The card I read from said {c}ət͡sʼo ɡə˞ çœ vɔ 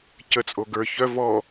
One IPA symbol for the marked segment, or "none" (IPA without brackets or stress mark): c